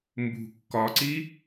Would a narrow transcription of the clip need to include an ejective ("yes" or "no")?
no